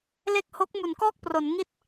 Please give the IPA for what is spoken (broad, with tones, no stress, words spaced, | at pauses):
le˥˩k̚ho˦˥k̚ mu˩˦nkɔː˥˩k̚pro˩˦n ŋi˥˩t̚